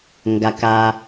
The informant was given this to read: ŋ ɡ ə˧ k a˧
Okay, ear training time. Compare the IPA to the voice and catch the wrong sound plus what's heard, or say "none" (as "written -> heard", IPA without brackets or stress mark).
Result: ə˧ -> a˧